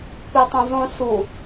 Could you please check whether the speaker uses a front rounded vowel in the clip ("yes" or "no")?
yes